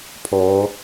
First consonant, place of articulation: labial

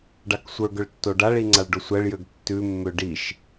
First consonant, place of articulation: retroflex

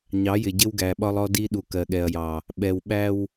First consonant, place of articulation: palatal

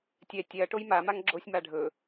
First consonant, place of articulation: alveolar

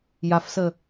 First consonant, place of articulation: palatal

